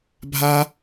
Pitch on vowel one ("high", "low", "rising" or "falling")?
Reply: high